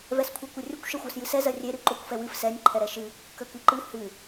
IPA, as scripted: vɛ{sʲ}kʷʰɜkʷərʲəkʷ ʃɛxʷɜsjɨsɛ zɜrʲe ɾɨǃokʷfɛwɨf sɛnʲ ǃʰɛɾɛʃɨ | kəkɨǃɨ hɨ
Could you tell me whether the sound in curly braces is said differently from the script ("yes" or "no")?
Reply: yes